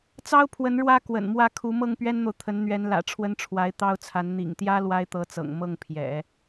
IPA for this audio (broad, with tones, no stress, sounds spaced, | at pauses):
t͡s ɑ˥ ʊ̯ pʰ w ə˧˥ n ɻ w ä˥ k w ə̰˨˩ n m w ä˥˩ kʰ u˧˥ m ɤ˥˩ ŋ p ɥ ɛ˥ n n̪ o˨ ʊ̯ t̪ʰ ə˧˥ n n̪ ɥ ɛ˧˥ n l ä̰˨˩ ʈ͡ʂʰ w ə˥ n ʈ͡ʂʰ w a˧˥ ɪ̯ t̪ ɑ˥ ʊ̯ t͡sʰ a˧˥ n n̪ ḭ˨˩ ŋ t̪ j ä˥ l w a˥ ɪ̯ t̪ ɤ˧˥ t͡s ɤ̰˨˩ ŋ m ɤ˥˩ ŋ pʰ j ɛ̰˨˩˦